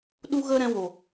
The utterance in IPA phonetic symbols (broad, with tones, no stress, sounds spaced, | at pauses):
ɗ u˦ ɣ ə˦ ɾ ɛ̃˧ w o˨